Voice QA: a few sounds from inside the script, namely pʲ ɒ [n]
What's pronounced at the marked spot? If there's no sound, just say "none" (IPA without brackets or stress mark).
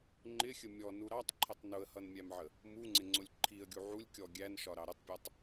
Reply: tˤ